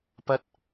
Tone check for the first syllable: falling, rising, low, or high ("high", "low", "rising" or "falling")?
high